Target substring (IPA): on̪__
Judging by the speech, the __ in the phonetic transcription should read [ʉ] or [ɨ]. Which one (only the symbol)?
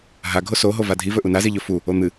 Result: ɨ